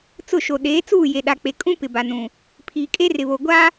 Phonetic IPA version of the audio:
t͡sʊ˦˨ʃo˨ ɗeː˨˦t͡suː˦˨ je˨ɗa˨k͡pe˨ kʼũ˦ pɪ˨ba˨nũ˨ | pʰiː˨kʼe˦rɪ˨βo˨ ɡʷa˦

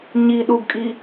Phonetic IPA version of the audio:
ɲi ɗuɡkʼi

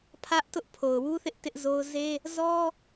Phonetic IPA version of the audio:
pʰä˦ʔ tʊ˦ʔpʰo˨ʊ̯wu˦θɪ˦ʔ tɪ˦ʔzo˦ʊ̯ ze˦ | zɔ˦

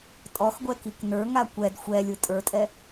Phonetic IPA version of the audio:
tʼɔxɡʷɛkik nə˞ŋa kʷɛd xʷɛlʲɯ tʼə˞tʼɛ

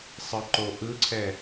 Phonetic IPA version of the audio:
sˤəǃo ʔɯǀʰɛ

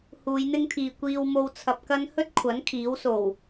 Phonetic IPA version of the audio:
huː˨˧jn̪ɪ˥ŋt̪ʰiː˨ kʷiː˧w mo˧wt͡sʰɐ˨p̚kɐ˥n hɵ˥t̚kʷʰɐ˨˥n kʰiː˨˥wso˨˩w

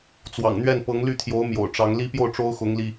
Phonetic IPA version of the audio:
t͡swɑ̰˨˩ŋn̪ɥɛ˥˩n pɤ˧˥ŋly˥˩t̪ʰjo˧˥ʊ̯ mjo̰˨˩ʊ̯ʈ͡ʂɑ˧˥ŋ li˥pjo˥˩ʊ̯ʈ͡ʂo˥ʊ̯ xʊ˧˥ŋli˧

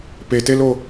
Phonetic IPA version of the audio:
petelo

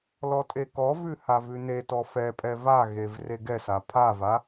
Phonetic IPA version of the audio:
lɔtʼekɔvʉ havʉnetɔ fɛpʼɛ vaɣev reɡɛsa pʰava

